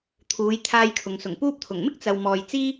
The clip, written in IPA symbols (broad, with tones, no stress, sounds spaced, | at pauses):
t̪ʰ uː˨˧ j t̪ʰ aː˧ j kʰ ʊ˨ ŋ s ʊ˨˩ ŋ p uː˧ p̚ t̪ʰ ʊ˨˩ ŋ m ɪ˥ k̚ t͡s ɐ˨ w m ɔː˨ j t͡s iː˥